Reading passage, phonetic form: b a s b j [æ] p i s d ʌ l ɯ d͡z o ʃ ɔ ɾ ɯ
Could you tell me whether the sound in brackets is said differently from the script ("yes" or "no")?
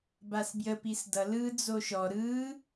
yes